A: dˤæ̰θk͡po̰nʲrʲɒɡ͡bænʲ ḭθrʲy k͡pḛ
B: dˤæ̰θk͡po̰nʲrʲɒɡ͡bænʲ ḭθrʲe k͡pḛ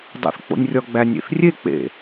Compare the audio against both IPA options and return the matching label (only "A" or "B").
B